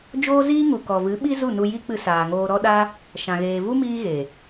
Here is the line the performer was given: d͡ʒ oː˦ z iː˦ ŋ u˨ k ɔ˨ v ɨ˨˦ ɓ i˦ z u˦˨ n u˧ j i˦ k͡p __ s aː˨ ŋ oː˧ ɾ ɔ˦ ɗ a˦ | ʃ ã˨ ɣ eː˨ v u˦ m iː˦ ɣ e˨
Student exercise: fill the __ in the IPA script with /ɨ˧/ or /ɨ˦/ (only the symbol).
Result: ɨ˧